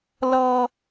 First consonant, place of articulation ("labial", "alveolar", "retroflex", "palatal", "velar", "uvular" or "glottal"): alveolar